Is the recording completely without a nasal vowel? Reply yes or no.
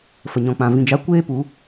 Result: no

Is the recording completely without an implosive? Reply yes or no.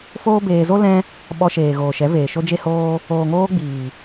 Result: no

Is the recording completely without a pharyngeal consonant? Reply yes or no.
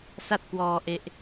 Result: yes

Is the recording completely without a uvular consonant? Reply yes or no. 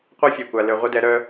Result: no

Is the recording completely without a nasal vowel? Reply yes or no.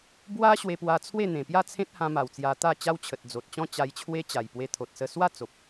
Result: no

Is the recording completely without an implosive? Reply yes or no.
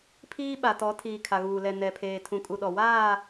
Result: no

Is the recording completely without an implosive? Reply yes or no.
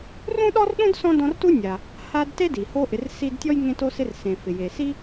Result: no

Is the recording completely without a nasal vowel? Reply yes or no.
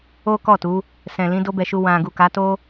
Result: no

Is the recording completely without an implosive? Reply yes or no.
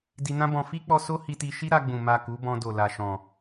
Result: yes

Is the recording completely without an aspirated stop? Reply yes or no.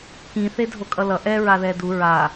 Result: yes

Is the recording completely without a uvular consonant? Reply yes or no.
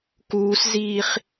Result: no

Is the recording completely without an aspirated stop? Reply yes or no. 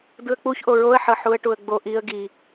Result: yes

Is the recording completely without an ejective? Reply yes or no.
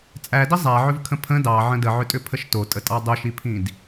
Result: no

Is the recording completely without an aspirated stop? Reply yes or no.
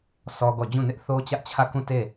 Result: no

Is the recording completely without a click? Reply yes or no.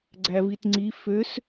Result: no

